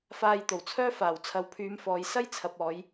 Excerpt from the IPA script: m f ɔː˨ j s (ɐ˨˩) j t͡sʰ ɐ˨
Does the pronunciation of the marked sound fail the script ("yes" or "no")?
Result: yes